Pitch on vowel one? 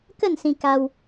falling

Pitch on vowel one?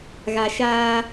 low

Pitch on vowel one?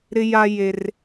high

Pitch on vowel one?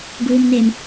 low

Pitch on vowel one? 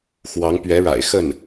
rising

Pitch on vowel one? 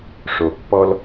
low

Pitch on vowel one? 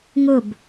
falling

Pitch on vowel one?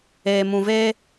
low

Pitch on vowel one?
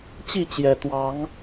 falling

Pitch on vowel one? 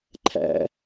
low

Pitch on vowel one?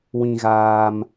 low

